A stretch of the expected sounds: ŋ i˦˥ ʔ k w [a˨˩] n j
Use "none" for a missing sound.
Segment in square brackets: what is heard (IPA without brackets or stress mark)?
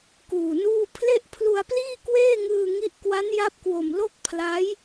a˦˥